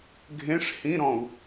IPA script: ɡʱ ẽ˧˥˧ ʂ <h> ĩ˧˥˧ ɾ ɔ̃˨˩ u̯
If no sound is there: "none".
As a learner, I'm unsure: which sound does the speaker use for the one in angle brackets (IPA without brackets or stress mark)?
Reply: h